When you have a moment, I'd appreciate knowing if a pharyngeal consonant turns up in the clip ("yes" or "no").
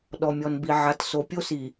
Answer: yes